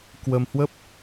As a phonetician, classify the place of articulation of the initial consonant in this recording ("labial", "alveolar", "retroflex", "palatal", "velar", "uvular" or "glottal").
velar